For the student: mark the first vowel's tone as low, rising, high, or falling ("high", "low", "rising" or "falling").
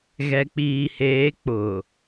low